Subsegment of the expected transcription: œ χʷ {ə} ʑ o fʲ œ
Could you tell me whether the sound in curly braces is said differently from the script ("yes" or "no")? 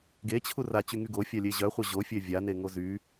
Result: yes